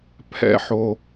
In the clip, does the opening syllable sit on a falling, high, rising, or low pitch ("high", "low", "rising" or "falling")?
low